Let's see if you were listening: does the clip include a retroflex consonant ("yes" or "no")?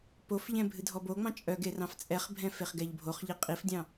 no